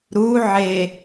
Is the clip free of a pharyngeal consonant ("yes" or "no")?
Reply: no